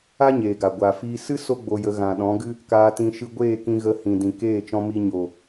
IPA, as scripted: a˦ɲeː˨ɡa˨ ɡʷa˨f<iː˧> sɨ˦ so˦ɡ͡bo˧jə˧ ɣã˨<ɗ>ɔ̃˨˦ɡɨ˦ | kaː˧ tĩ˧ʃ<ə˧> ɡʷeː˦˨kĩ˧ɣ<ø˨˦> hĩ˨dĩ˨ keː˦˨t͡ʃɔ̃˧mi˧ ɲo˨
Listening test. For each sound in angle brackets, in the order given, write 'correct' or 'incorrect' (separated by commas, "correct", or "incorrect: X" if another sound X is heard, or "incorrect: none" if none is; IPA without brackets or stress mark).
correct, correct, incorrect: ɨ˧, incorrect: ə˨˦